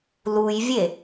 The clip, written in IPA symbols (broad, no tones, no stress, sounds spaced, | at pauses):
l u j vʲ e